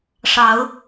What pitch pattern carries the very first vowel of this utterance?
rising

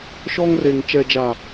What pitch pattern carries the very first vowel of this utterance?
high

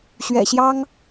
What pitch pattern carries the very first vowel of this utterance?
low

